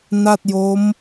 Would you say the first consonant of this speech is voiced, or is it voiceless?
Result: voiced